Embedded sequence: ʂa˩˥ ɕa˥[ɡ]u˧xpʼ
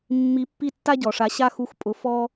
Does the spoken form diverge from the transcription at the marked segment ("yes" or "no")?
yes